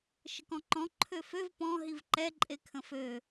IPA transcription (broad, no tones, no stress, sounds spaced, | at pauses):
ʃ ə k ɔ̃ ǃ ɔ̃ ǃʰ ø f ø v p ɔ̃ ɦ i v ǃ ɛ ǃʼ e kʰ ə̃ f ø